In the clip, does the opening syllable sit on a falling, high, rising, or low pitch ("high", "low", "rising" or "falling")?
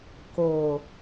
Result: low